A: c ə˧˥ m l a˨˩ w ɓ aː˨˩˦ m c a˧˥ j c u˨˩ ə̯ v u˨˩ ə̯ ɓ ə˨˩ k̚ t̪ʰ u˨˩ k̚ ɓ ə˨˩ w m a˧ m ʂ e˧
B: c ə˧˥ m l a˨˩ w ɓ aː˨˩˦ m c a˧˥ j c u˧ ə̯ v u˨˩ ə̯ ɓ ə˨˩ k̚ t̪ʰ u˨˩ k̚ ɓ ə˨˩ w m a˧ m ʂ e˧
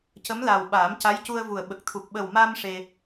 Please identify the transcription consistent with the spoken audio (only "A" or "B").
B